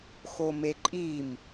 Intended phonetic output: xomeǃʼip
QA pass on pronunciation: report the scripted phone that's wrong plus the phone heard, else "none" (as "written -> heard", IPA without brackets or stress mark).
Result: p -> m